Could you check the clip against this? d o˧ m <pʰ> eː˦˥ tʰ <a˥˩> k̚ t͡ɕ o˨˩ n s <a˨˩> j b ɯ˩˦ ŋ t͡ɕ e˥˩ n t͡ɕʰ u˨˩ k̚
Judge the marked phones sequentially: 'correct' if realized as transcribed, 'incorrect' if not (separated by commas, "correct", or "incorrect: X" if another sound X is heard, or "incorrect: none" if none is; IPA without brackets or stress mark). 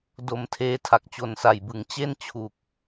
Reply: incorrect: tʰ, incorrect: a˨˩, correct